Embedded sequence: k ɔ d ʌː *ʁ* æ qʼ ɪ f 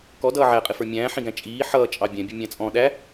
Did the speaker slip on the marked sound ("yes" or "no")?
yes